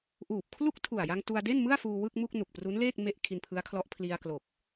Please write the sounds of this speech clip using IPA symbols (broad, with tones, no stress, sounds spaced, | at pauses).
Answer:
ʔ uː˨˩ p̚ kʰ l u˥˩ k̚ tʰ u˨˩ a̯ j a˧ ŋ t u˧ a̯ d e˥˩ n m ɯ˥˩ a̯ f uː˧ w ɯ˥˩ k̚ m u˥˩ k̚ n u˨˩ k̚ p r u˦˥ n l eː˥˩ k̚ m e˥˩ ʔ kʰ i˧ n pʰ ɯ˦˥ a̯ kʰ l ɔ˦˥ ʔ pʰ l i˧ a̯ k l o˨˩ k̚